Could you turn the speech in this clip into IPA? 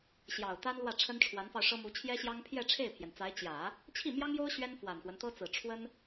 ɕjɑ˨˩ʊ̯t̪a˥nlwä˥˩ ʈ͡ʂʰə˥nʈ͡ʂʰwa˧˥nfɑ˧ʊ̯ʂɤ˥ mu˧˥t͡ɕʰjɛ˥ɕjɑ˥ŋ pʰjɛ˥˧ ʈ͡ʂʰe˥˩ɪ̯pʰjɛ˩nt͡sa˧˥ɪ̯ t͡ɕjä˨˩˦ | t͡ɕʰi˥˩mjɑ˥ŋjo˥ʊ̯ ɕɥɛ˥nfwa˨˩nxwə˦nt̪ɤ˥ t͡sɹ̩˨˩ʈ͡ʂʰwə˥n

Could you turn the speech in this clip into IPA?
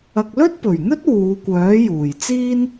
ɐ˨k̚lɵ˥t̚pɵ˨˩ɥn̪ɵ˥t̚ wuː˨˧kʷœː˨˥juː˨˩jt͡siː˥n

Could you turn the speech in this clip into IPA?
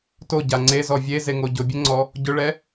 toɟa ŋ͡ǀezɔ vʲezeŋo ɟʊbʲeŋ͡ǀɔ | ɟʊɭɛ

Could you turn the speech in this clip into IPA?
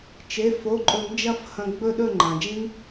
t͡ʃe˩˧˩fo˩˧˩ǃʼɵ˨˩˦m d͡ʒɐ˥˨fhɐ̃˧ɡ͡bɵ˥˨ ɗɵ˥˨ŋ͡ǃã˩d͡ʒĩ˦˥ŋ

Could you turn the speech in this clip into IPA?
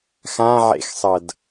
xãʕḛxsˤʌd

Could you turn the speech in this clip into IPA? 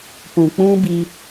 pũ˨ k͡pũ˦bi˧

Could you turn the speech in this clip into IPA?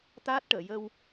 t̪aː˦˥t̚ʈəː˨˩˨jə˧w

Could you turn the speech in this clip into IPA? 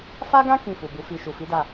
fa˦ɡã˦ kĩ˦˨fu˨bu˨˦ fi˧ ʃu˨fi˨˦da˦˨

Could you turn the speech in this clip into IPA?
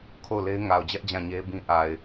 kʰo˦˨ʊ̯le˦ɪ̯ ŋa˨ʊ̯d͡ʑɛ˦ʔ d͡ʑã˦˨ɲe˦bĩ˦ ʔa˨ɪ̯

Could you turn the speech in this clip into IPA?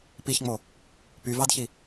piçŋ͡mo | pyvɑdçi

